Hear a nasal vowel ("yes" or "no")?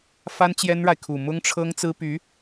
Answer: no